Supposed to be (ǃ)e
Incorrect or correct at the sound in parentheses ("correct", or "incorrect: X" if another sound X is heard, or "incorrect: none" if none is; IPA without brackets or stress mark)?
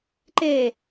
correct